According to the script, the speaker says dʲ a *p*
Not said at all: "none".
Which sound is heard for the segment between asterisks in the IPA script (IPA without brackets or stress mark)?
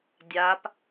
p